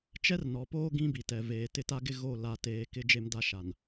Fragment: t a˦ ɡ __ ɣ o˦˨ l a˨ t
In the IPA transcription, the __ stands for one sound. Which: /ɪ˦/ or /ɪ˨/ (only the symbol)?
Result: ɪ˦